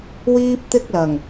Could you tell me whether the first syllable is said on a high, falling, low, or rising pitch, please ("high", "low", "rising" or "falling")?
high